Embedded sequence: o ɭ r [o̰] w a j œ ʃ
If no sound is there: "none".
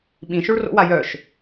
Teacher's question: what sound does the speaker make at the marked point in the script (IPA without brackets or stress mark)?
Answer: o̰